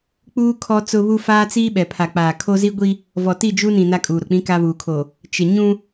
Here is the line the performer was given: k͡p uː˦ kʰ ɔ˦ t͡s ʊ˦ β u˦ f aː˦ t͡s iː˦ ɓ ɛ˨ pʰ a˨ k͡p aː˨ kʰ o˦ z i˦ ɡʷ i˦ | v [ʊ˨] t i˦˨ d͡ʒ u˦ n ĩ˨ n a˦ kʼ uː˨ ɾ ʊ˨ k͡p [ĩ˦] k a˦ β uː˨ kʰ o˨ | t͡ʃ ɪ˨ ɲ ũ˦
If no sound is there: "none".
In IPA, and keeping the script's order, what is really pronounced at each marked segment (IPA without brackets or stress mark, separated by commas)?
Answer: ɔ˨, ĩ˦